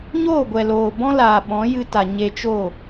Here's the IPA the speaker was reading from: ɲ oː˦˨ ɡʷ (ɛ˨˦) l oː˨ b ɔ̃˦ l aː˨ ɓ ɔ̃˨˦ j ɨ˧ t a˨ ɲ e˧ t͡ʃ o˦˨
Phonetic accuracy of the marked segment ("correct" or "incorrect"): incorrect